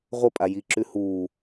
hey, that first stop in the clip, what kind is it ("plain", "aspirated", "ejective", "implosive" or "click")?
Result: ejective